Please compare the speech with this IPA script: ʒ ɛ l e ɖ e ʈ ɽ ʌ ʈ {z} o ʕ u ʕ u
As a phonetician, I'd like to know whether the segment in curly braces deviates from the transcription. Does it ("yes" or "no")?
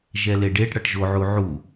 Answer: yes